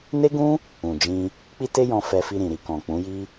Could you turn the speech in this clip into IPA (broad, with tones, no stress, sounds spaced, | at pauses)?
n e˦ ɡ ũ˦ | ũ˨ d͡ʒ ĩ˧ | k͡p i˦ t e˦ j ɔ̃˧ f ɛ˧ f i˧ ɾ ĩ˨ ɾ i˨ k ɔ̃˨ k͡p ũ˨˦ j i˦